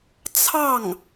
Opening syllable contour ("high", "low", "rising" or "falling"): falling